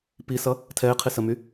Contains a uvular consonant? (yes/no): yes